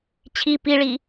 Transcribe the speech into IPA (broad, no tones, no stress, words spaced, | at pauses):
t͡ɕʰi piɭi